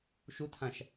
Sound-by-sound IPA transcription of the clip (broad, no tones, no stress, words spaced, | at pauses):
ʃutʰãʃ